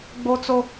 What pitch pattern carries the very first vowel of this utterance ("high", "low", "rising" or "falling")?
high